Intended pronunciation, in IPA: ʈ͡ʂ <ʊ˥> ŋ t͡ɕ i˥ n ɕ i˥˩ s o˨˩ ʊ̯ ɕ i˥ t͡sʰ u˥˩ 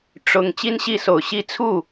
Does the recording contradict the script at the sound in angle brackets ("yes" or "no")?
yes